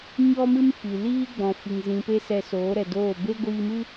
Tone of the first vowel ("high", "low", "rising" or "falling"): high